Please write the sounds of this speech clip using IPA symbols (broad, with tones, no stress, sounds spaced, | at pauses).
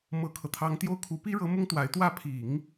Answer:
m ɤ˥ kʰ ɤ˨ t̪ʰ ɑ˥ ŋ t̪ j o˥˩ ʊ̯ kʰ u˧˥ p i˥ ɻ ɤ˧˥ m ʊ˥ ŋ t̪ w a˧˥ ɪ̯ t̪ w ä˥˩ pʰ i˨˩˦ ŋ